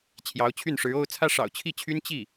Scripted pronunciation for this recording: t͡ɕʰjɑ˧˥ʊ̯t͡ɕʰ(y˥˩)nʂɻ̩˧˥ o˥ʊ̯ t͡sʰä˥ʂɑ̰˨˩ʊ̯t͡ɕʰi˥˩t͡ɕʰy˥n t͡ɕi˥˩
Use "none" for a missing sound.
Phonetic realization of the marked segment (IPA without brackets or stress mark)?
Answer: y˥˩